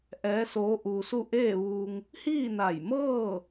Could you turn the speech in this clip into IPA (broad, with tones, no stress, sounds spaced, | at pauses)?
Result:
ʔ ɛː˧˥ s oː˧˥ ʔ uː˧ s u˥˨ ʔ eː˥˨ ʋ uː˧ ŋ | h iː˥˨ n a˧˩ j m ɤː˥˨